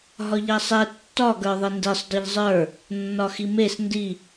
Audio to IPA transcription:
ɦɒʎasˤɛ tːɒ ɡə˞ðˤendesˤ dˤeʎzˤə˞ | nːɒximes ndi

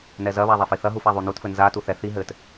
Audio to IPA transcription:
nɛzɐβa ðˤafiθɐɦuf aðˤunutfɘ nzatu θɛ θi ɦɘt

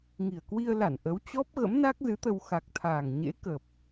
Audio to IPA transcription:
ŋi˨˩ə̯kwi˧ə̯la˧˩n ʔə˨˦wt͡ɕɔ˦˥p̚ ɣə̰˧˥mna˦˥k̚zɨ˨˦t̪ə˧w xa˨˩k̚t̪ʰaː˨˩ŋɲḛ˧˥kə˨˩p̚

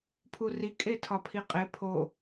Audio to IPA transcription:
pʰuri kʼetʰɒpʰiqʼe pʰo

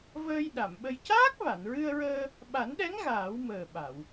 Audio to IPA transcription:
vəː˧j ɗa˨˩˨mɓə˧j caː˦˥k̚va˨˩˨nɹɨ˧ə̯ɹəː˧ | ɓa˨˩˦nɗɛ˧˥ŋ ɣaː˨˩˦wməː˨˩ ɓa˨˩˨w

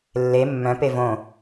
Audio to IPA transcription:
lːe mːœ̃pe võ

